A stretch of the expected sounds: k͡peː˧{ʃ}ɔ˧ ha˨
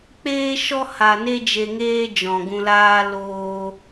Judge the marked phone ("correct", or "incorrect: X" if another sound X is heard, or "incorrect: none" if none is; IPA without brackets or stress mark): correct